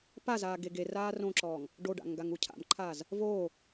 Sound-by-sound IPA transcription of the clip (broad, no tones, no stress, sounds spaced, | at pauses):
p a z aː ɡ e ɡ e r aː r õ ǁ ɔː ŋ | ɖ o ɖ a̰ ŋ ɡ a ŋ u cʰ a̰ m ǃʰ aː z | v oː